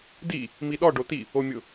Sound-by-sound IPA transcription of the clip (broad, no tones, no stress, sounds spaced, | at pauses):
d i | m i ɗ ɔ ɖ o t i | o mʲ ʊ